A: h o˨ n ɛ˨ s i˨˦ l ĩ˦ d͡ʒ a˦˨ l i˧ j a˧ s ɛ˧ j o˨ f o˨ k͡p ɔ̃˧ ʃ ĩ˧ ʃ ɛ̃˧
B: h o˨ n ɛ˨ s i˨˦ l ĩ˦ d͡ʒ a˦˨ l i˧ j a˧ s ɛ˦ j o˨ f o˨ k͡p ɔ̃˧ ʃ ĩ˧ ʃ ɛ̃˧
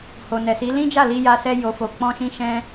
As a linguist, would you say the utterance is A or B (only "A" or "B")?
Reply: A